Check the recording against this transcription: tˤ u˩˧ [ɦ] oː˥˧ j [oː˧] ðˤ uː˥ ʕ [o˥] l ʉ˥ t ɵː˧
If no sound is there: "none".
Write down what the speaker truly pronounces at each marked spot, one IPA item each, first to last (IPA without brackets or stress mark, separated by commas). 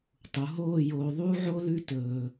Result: ɦ, oː˧, o˥